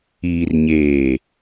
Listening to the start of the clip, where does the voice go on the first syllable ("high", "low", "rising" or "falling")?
low